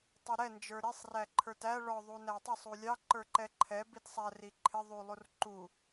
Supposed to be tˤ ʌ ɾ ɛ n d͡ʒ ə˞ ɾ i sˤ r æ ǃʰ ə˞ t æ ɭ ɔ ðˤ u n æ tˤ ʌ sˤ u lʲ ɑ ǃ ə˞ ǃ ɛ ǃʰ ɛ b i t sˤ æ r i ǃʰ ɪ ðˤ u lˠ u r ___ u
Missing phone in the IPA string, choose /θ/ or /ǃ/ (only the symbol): ǃ